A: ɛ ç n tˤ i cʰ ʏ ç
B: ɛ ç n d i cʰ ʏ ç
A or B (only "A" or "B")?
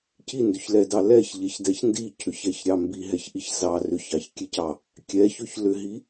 B